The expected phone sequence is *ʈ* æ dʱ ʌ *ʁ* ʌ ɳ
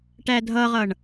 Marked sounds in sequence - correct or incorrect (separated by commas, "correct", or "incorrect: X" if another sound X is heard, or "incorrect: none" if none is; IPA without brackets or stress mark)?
correct, correct